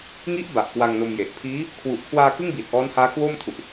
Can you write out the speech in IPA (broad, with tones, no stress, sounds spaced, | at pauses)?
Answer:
ŋ i˦˥ ʔ b a˨˩ ʔ k w a˧ ŋ n o˧ m j e˨˩ ʔ pʰ iː˦˥ | kʰ w u˨˩ ʔ kʰ w aː˧ k ɯ˥˩ ŋ b iː˨˩ t̚ ʔ ɔː˦˥ n h aː˦˥ kʰ w oː˥˩ m tʰ u˨˩ ʔ